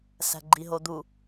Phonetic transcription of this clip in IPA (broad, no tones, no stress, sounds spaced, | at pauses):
s æ̤ ɡ͡ǃ i ɦ o d̪ u